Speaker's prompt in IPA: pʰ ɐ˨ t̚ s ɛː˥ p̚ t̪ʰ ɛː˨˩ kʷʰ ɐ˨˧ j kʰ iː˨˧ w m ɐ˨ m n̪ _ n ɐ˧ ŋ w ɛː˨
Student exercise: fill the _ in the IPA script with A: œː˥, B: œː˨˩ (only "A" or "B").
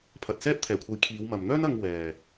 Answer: A